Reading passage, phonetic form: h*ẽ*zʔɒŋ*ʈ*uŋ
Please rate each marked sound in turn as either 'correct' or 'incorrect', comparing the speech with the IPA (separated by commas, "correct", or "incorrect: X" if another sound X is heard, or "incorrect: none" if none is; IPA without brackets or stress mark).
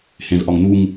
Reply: correct, incorrect: n̪